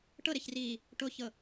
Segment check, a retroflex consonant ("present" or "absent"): present